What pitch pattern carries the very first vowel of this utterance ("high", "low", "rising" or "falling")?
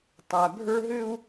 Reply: low